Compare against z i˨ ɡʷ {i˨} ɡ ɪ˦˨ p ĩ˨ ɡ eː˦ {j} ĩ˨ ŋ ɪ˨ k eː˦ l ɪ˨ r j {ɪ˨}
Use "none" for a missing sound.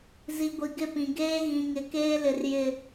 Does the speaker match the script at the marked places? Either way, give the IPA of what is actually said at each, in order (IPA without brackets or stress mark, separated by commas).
i˨, ɣ, ɪ˨